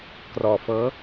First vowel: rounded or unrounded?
rounded